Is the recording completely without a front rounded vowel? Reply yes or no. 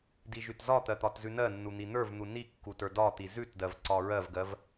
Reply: yes